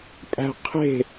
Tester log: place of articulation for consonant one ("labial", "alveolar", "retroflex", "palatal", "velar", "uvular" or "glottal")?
labial